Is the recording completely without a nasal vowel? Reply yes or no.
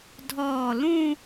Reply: no